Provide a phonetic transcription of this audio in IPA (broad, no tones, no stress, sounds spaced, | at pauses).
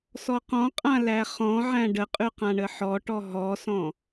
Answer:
s ɔ q ɔ̃ qʼ ã l æ χ ɔ̃ ʕ æ̃ ɖ ə qʼ ʉ q ã ɳ ə ħ ɔ ʈ ɔ ɦ ɔ s ɔ̃